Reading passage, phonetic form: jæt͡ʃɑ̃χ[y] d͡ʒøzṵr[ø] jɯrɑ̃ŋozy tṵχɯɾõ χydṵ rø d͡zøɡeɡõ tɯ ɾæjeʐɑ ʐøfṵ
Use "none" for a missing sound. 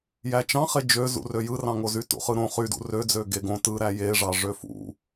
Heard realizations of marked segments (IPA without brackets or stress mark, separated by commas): e, ø